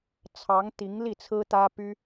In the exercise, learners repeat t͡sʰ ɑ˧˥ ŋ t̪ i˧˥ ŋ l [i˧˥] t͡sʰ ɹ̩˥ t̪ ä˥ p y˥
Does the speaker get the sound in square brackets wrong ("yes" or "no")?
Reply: yes